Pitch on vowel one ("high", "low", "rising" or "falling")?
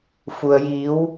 low